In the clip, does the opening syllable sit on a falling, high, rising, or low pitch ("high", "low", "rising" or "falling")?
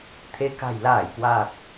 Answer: rising